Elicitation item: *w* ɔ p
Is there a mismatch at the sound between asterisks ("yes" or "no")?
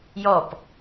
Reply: yes